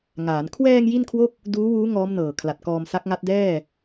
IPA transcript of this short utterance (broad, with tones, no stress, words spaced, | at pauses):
ŋaː˩˦n kʰwɛː˧ŋ ji˥˩nkʰwo˥˩k̚ | duː˦˥wuː˦˥ ŋɔː˦˥mnɤː˨˩ kʰla˨˩t̚kɔː˧msa˦˥k̚ŋa˦˥t̚ dɛː˥˩